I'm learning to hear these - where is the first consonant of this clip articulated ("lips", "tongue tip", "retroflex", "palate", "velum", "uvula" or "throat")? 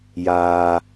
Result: palate